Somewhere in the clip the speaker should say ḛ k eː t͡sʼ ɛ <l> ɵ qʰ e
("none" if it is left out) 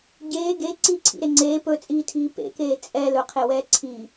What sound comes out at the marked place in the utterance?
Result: l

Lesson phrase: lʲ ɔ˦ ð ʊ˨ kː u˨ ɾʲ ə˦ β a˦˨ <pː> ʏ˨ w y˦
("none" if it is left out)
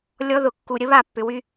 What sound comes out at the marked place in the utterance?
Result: pː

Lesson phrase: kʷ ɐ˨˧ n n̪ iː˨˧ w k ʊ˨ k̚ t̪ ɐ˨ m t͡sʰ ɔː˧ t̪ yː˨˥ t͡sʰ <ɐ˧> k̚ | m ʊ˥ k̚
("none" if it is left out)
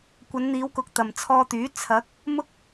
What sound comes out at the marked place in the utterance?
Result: ɐ˨˥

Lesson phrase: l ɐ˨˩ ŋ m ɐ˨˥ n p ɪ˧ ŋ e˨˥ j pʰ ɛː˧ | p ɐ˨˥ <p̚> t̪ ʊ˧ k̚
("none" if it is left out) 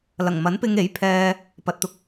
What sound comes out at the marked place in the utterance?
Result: t̚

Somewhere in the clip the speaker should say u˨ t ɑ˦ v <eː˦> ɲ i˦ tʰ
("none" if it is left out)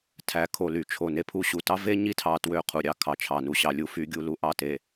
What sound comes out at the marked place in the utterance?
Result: e˦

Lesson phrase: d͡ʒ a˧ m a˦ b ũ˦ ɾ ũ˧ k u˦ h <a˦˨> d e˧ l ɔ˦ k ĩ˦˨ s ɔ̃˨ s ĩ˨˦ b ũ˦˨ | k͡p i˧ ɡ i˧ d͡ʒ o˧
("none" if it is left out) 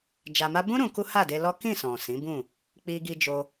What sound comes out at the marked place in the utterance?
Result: a˦˨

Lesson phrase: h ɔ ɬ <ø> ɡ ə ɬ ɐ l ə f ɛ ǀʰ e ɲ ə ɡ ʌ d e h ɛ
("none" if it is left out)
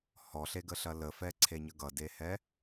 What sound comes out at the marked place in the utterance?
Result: e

